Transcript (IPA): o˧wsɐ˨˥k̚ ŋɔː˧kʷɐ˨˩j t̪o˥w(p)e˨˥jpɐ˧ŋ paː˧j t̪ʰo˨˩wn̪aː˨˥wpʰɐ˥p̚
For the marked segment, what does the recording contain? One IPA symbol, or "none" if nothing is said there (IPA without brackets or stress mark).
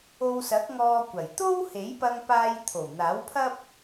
h